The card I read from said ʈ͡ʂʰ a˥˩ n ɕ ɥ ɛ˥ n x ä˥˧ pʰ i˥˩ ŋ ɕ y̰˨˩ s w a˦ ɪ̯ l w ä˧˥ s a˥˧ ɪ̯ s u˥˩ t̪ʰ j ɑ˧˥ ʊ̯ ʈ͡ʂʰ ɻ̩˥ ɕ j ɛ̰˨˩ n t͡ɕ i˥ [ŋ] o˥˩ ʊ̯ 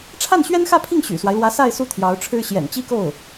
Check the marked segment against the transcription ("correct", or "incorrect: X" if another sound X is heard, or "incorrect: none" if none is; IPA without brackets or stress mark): incorrect: k